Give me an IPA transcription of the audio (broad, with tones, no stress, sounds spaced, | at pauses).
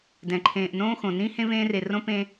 d ɛ̃˩ ǃʰ ẽː˨ ʔ n õː˥ x õ˩ n ĩ˥ h ẽ˥ v ẽː˦ r e˨ r õ˥ p ẽ˥